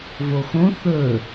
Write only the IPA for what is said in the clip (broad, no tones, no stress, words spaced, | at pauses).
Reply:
voxõ θɵ